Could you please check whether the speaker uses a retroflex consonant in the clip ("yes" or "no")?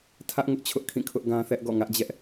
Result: no